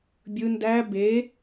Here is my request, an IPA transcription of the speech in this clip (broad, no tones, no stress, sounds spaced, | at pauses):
bʲ ɯ n d æ b e